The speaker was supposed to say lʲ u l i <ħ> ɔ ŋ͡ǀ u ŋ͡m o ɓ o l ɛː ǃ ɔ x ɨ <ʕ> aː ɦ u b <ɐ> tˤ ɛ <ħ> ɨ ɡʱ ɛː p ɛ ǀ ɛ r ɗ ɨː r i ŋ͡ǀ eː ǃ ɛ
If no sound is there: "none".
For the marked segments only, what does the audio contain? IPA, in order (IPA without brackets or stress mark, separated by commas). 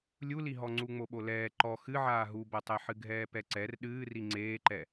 ɦ, ʕ, ɐ, ħ